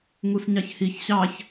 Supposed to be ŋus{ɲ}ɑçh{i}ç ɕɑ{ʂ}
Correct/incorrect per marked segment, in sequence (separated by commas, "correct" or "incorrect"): correct, correct, incorrect